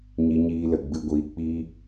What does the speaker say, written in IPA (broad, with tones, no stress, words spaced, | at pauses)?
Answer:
ɲi˧ɲiː˧lə˨ɡ͡bɨ˧ ɡʷiː˧k͡piː˦